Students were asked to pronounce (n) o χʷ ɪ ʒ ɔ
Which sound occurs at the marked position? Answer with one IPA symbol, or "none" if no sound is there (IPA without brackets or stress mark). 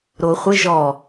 ɾ